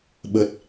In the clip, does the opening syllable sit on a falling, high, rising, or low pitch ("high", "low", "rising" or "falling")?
low